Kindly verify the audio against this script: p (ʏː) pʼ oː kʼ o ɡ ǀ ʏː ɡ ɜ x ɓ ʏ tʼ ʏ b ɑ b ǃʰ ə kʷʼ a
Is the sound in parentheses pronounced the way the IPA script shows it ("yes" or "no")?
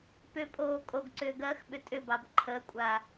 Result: no